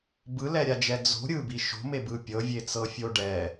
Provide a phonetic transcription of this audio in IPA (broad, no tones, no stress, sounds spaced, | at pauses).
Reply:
b ɯ l ɛ ɾʲ a d͡ʒ ɛ d͡z o̤ ɾʲ ɯ b i ʃ o̤ m e b ɯ pʲ ɤ vʲ e t͡s ɤ fʲ o ɖ ɛ